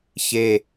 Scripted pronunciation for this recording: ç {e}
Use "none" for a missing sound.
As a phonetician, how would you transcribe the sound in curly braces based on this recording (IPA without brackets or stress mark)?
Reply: e